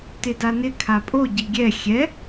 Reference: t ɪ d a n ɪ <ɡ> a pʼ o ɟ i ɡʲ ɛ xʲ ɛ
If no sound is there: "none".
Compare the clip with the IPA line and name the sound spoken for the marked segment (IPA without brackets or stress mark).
kʰ